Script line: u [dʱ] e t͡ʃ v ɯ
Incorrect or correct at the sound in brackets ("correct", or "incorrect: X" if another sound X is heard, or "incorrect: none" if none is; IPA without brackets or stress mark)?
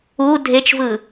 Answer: correct